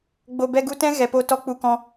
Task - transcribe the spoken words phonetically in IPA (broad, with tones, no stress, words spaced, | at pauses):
ɡ͡bo˨bɛ˧ɡu˧tɛ̃˦ ɣɛ˨po˧ tɔ˧k͡pu˧kɔ̃˧